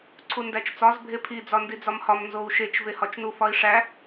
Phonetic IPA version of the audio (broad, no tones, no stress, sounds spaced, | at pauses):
ǀʰ u n d æ t͡ʃ t͡s ɒ z bʱ e pʰ i d͡z ɒ n d i d͡z ɒ m h ɒ m n z o u̯ ʃ e t͡ʃ v e h ɒ t͡ʃ n u f ɒ i̯ ʂ æ